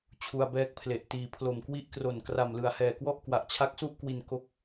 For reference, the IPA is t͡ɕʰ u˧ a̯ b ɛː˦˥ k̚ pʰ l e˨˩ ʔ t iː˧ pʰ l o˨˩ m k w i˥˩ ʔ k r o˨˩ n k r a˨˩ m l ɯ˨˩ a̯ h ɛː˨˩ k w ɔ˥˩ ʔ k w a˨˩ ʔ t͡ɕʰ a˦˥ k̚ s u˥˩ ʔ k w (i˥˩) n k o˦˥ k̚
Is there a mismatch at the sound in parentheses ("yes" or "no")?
yes